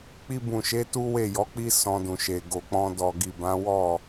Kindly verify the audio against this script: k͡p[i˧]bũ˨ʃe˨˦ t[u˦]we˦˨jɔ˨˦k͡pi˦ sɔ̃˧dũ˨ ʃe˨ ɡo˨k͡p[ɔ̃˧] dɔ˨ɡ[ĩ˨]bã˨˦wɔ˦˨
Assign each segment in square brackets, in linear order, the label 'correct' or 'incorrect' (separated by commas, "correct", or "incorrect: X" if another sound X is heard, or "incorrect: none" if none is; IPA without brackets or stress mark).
correct, correct, correct, incorrect: i˨